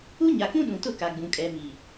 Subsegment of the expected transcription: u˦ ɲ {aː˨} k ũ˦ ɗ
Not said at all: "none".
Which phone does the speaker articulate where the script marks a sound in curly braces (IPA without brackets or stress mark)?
a˨